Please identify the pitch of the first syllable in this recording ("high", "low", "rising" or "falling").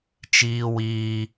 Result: high